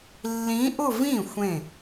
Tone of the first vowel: rising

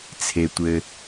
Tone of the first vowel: low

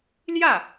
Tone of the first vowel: falling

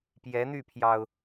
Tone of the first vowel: rising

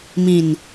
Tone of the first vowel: low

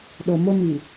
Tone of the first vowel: low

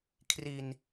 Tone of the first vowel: low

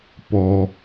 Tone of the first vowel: high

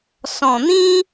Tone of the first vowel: low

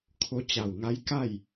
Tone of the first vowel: rising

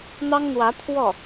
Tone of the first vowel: high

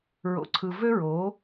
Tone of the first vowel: low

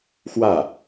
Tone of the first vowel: falling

